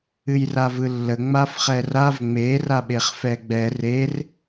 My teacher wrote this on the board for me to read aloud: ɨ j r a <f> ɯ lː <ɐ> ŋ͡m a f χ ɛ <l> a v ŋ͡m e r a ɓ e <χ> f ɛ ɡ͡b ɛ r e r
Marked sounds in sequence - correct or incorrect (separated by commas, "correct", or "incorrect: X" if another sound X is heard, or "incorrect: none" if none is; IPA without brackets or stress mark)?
incorrect: v, incorrect: ə, incorrect: r, correct